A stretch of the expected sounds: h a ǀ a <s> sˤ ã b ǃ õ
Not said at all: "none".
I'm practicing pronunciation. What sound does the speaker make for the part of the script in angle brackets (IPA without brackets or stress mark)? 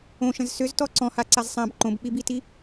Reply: z